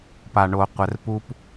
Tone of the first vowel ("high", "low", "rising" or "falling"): low